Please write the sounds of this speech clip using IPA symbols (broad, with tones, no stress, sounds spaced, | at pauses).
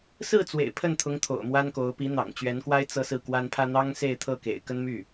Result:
s ɹ̩˥˩ t͡s w ḛ˨˩ ɪ̯ pʰ ə˥˩ n t̪ʰ ʊ˧˥ ŋ t̪ʰ o̰˨˩ ʊ̯ m w a˥ n k o˧˥ ʊ̯ p i˧˥ n̪ ɑ̰˨˩ ŋ t͡ɕ ɥ ɛ˧˥ n k w a˥ ɪ̯ t͡s ɤ˥˧ s ɹ̩˥˩ k w a˥ n pʰ ä˥ n̪ ɑ˥ ŋ s e˥˧ ɪ̯ t̪ʰ ɤ˥˩ k ḛ˨˩ ɪ̯ k ə˥ n m y˥˩